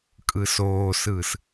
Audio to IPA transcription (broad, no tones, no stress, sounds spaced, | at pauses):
kʼ ɯ s oː s ɯː s